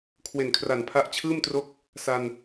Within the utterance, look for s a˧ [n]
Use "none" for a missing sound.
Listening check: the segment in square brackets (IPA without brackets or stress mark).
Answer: n